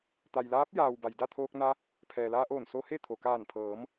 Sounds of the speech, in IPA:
t̪ a˩ j l aː˧˥ p̚ j aː˩ w b a˩ j d a˥˨ t̪ʰ oː˧ k̚ n a˧ | pʰ ɛː˩ l aː˧ ʔ oː˧˩ n s o˧ h e˥˨ t̪ʰ o˩ k aː˧˩ n pʰ ɤː˩˧ m

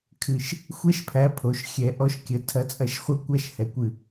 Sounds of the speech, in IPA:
kʰ ɨ˨˩ ʃ | xʷ ɛ˦ ʃ pʰ æ˨˥ pʰ o˩˧ ʃ xʲ ɛ˩˧ ʔ ɔ˨˩ ʃ kʲ ə˩˧ tʰ ɐ˨˥ t͡sʼ ɐ˨˥ ʃ χʷ ɐ˦˨ kʷ æ˦˨ ʃ h ɛ˨˥ kʷ ɨ˨˩

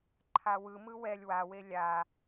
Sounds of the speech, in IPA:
ǃʰ a w ɯ m ɯ w ɛ lʲ w a w e lʲ a

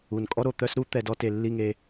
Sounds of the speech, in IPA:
u˨ n kʼ ɔ˦ ɾ o˨ t̪ œ˦ s ɾ u˦ t̪ ɛ˧ d ɔ˦ t e˨ lː i˦˨ ŋ e˧

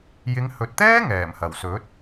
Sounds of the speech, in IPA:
j ɪ˨˧ ŋ h ɵ˨ t̚ t̪ ɛː˥ ŋ ɛː˨˩ m h ɐ˨˩ w s ɵ˨˥ t̚

